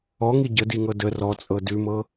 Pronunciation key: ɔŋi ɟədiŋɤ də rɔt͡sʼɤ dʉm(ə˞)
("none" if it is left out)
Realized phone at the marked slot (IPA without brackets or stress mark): ɤ